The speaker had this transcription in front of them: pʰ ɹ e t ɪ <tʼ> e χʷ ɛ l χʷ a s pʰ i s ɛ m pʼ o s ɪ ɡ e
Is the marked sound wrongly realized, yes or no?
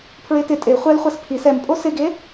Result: no